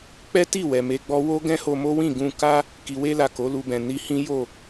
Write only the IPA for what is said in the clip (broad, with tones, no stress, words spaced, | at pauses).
k͡pɛ˦ ti˦˨wɛ˨ me˧ɡ͡bɔ˦ wo˦ ɡɛ̃˦ho˧mo˦wĩ˦˨ ɡũ˧ ka˦ | ki˨we˧la˨ ko˨˦lu˧bɛ̃˨ ni˧hĩ˦jo˦˨